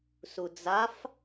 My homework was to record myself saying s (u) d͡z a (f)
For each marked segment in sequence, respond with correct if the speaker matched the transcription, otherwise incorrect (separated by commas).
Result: correct, correct